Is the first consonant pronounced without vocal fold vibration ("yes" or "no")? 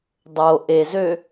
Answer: no